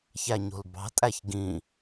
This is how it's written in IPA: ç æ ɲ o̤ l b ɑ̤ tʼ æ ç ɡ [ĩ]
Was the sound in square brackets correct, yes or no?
yes